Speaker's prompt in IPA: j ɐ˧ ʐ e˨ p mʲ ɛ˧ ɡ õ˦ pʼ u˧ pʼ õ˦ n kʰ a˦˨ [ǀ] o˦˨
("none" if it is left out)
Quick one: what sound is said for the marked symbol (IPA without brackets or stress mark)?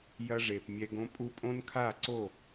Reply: ǀ